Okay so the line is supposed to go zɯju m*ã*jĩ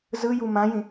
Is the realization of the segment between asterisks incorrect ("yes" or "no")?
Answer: no